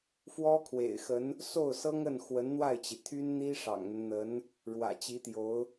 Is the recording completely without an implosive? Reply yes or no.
yes